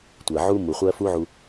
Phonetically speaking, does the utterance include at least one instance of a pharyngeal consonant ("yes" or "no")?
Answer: yes